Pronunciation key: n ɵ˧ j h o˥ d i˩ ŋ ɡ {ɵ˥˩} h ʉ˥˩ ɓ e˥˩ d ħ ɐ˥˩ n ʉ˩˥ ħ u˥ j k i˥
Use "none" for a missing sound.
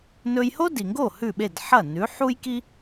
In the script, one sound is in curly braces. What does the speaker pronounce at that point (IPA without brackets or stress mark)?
o˥˩